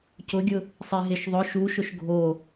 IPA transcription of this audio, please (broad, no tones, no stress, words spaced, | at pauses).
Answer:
cʊɡʲʊ | sˤeɦeʃðˤʊ ʃuʃʊʃ ɡʱo